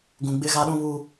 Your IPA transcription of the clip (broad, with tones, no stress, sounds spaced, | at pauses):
ɡ ũ˨ ɡ͡b ɪ˦˨ ɣ a˦ ɗ ũ˦ β u˦